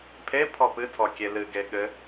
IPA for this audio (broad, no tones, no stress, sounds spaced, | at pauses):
pʰ e pʰ ɔ p ɨ tʰ ɔ kʲ e l ɨ ɡ e ɠ ɘ